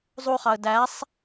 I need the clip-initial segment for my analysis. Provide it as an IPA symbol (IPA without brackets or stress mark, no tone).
zˤ